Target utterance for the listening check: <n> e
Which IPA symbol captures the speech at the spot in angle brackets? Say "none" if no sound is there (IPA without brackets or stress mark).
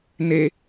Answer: n